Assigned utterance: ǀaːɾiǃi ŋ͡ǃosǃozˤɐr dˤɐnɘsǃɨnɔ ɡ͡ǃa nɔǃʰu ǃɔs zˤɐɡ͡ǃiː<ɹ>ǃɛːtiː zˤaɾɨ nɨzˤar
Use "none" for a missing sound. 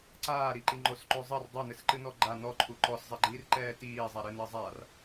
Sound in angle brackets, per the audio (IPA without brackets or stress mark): r